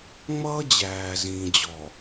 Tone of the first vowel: high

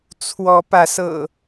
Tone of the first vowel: rising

